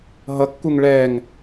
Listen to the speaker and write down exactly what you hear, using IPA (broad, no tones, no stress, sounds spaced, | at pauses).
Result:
ɦ ʌ kː u ŋ ɭ ɛː ŋ